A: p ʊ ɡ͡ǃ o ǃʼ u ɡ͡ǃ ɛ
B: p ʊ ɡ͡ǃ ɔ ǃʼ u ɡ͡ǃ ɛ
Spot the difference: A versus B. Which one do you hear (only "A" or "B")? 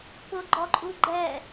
B